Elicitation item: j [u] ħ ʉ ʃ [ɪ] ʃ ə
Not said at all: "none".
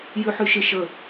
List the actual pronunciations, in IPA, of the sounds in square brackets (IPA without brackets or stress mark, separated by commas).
ʉ, ɪ